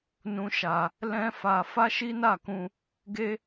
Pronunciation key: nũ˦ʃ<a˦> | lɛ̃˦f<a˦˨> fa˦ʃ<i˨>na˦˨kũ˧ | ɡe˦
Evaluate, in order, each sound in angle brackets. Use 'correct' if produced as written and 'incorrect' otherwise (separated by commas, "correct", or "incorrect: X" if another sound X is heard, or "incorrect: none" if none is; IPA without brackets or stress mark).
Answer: incorrect: a˧, incorrect: a˧, incorrect: i˦